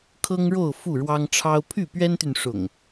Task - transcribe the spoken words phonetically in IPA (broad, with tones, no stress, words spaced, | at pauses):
kʰɤ˦ŋɻo˥˨ʊ̯ fu˥˨ɻwɑ˦ŋʈ͡ʂʰɑ˦ʊ̯ pʰy˥˨pɥɛ˦nt̪y˨n ʂʊ̰˨˩ŋ